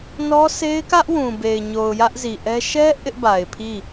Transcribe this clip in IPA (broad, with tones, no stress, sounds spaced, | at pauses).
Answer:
n ɔ˦ s e˦ ɪ̯ k ä˦ ʔ w ũ˨ b e˨ ɪ̯ ɲ o˨ ʊ̯ j ä˦ ʔ z i˨ ʔ ɛ˦ ʃ ɛ˦ ʔ ɪ˦ ʔ b a˨ ɪ̯ pʰ i˦˨